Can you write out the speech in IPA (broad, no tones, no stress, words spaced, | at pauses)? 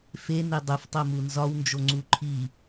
fene dˤuftˤomu nzɒwnd͡ʒoŋ͡ǀu ǃʰi